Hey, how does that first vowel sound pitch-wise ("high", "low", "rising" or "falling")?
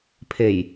low